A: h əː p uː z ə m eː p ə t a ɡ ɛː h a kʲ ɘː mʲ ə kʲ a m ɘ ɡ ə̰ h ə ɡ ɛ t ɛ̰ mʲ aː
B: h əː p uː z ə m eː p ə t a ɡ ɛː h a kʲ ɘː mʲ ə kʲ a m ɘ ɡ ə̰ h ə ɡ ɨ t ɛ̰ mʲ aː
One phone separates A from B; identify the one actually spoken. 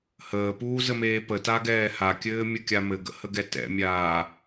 A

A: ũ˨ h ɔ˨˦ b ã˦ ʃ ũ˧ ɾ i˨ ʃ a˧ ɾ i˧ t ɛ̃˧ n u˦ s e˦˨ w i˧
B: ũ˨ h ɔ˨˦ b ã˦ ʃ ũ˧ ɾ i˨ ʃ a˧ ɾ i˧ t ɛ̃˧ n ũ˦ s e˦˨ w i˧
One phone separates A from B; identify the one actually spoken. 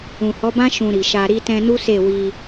A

